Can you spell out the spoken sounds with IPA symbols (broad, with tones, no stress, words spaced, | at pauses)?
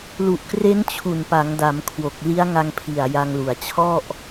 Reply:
lu˨˩ʔkre˦˥n t͡ɕʰu˨˩npa˩˦ŋda˩˦m kʰwo˨˩k̚li˦˥a̯ŋa˧ŋpʰi˨˩a̯ ja˧ŋlu˨˩a̯ t͡ɕʰɔ˥˩ʔ